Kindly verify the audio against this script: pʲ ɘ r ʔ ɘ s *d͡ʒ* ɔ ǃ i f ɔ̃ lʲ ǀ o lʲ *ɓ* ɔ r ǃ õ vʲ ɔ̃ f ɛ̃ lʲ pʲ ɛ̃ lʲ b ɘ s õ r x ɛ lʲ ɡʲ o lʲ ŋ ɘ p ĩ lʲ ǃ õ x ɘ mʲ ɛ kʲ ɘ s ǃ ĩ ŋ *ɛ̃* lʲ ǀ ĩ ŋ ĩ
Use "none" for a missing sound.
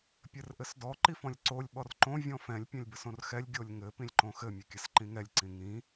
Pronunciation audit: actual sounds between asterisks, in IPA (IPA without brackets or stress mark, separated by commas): d, ɓ, ɛ